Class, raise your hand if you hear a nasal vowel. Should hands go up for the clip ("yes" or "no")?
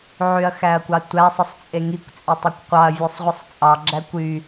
no